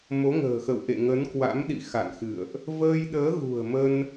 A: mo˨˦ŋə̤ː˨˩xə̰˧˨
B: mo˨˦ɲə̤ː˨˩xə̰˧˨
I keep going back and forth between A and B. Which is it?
A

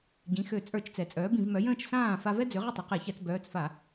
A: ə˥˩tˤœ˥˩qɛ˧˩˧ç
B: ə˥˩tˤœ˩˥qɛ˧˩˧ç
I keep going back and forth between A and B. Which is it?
B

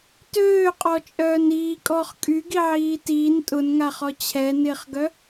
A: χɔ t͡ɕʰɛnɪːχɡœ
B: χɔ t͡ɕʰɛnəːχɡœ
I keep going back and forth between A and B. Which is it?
A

